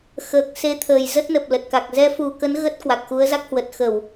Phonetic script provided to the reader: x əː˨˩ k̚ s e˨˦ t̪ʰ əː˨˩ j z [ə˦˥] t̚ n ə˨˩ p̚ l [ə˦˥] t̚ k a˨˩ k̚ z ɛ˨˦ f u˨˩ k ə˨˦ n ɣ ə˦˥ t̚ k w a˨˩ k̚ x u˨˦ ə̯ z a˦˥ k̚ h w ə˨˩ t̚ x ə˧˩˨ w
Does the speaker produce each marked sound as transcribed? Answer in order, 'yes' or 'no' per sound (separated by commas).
yes, no